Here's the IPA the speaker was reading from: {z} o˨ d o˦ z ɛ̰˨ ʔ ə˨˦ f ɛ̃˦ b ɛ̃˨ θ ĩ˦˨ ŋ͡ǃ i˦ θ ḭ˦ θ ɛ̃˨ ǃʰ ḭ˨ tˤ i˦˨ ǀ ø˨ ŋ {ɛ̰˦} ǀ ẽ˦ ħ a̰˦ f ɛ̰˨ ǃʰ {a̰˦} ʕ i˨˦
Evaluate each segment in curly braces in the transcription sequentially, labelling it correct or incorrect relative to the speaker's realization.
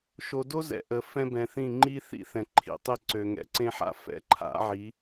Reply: incorrect: ʃ, incorrect: ɛ̰˨, incorrect: a̰˨˦

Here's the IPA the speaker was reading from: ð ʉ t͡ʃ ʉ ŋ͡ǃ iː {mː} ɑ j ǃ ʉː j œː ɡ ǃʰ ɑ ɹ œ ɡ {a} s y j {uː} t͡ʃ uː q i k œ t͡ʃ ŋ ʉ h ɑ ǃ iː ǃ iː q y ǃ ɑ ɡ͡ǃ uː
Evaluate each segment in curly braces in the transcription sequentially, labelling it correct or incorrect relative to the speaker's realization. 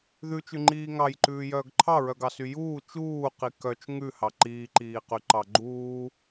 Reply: incorrect: ŋ, incorrect: ɑ, correct

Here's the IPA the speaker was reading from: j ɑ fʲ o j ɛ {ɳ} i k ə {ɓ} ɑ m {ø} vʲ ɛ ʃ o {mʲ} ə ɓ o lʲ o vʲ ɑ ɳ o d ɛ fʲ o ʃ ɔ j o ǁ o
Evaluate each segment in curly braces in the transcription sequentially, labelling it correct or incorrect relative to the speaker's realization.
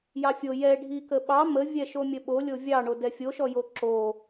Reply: incorrect: ɖʱ, correct, incorrect: ə, correct

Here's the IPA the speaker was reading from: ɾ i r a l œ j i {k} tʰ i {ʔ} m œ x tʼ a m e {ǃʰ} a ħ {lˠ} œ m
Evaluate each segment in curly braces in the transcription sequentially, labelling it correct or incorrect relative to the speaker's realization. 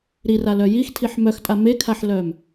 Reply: incorrect: x, incorrect: ħ, incorrect: kʰ, incorrect: l

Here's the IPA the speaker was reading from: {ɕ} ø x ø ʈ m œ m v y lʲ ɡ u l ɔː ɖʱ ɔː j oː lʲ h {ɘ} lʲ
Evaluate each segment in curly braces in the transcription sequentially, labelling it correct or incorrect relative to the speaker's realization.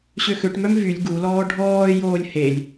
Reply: correct, incorrect: e

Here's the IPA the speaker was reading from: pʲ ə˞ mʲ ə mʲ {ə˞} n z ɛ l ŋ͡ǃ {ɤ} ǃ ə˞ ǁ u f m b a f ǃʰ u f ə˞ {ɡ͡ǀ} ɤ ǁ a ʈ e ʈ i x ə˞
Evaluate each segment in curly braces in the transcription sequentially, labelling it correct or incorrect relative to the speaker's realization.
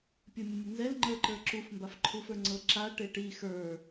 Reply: incorrect: ə, incorrect: ə˞, incorrect: ŋ͡ǀ

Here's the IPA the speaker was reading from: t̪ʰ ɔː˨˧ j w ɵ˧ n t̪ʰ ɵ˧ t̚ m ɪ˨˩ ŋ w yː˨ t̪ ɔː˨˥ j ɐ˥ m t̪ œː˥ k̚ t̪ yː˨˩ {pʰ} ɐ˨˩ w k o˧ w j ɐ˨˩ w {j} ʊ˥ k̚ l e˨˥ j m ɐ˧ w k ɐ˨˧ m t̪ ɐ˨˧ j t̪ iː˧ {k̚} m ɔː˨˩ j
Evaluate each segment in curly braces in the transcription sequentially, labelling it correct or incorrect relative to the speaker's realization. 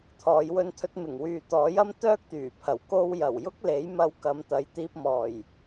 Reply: correct, correct, incorrect: p̚

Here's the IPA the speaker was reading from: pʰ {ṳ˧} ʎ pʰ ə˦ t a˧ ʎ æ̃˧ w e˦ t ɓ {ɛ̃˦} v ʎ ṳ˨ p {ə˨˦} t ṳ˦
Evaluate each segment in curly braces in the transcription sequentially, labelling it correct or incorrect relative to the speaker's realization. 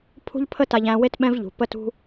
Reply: incorrect: ṳ˦, correct, incorrect: ə˦

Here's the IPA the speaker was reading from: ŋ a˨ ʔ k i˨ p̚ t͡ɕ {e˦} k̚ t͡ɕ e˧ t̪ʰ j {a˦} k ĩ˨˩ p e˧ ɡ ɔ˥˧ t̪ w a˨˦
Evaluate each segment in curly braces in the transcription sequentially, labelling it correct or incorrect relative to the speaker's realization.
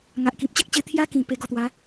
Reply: correct, incorrect: a˧

